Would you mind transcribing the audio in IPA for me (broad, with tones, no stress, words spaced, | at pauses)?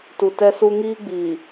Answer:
tu˨tɛ˦su˦ ŋiː˦ɡ͡biː˨